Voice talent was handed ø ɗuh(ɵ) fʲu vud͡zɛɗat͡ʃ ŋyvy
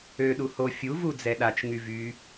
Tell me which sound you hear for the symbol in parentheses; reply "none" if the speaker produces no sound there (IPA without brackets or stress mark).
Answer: o